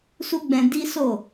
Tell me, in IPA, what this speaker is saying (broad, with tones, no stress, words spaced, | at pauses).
su˦ɡ͡bɛ̃˧ di˦so˦˨